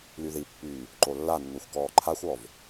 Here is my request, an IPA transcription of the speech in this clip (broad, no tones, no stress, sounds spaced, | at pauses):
l y ð i pː yː | ǃ o lː a nː u xʷ k ɔː ǃʰ a xʷ ɔ v